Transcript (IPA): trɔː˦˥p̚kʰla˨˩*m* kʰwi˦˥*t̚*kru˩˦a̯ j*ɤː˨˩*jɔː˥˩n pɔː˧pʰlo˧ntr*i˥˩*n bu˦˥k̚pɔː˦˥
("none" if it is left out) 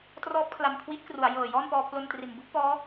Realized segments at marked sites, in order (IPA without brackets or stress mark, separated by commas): m, t̚, ɤː˨˩, i˨˩